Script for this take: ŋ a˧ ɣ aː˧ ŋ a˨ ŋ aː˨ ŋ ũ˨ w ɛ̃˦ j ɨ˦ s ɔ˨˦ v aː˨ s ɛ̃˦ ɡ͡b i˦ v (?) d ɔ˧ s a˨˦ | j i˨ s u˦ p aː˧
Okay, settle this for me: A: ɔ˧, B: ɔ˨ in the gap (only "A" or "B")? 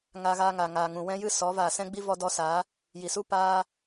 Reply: A